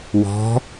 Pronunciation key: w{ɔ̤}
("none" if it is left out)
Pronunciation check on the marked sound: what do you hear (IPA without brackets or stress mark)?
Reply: ɔ̤